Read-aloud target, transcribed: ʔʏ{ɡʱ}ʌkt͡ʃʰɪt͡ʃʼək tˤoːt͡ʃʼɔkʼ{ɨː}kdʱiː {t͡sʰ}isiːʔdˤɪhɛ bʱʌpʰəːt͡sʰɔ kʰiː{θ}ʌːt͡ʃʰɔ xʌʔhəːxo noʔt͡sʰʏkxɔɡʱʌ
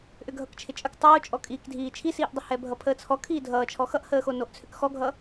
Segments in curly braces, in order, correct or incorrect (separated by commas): correct, incorrect, incorrect, incorrect